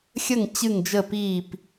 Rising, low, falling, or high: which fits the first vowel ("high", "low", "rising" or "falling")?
falling